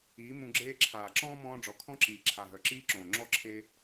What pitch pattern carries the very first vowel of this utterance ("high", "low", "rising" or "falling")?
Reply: rising